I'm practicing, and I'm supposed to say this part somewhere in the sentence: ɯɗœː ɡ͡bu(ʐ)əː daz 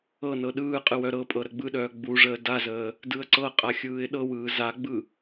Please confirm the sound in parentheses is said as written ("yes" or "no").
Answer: yes